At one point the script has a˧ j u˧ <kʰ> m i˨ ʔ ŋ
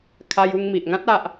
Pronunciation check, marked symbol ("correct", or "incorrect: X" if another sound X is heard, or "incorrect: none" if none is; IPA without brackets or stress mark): incorrect: ŋ